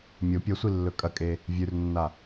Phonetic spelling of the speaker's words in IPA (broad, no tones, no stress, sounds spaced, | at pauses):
mʲ o pʲ ɐ sʷ i lː ɵ kʼ ɐ kʼ e | vʲ ʉ r nː a